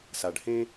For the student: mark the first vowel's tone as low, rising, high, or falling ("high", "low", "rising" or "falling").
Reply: low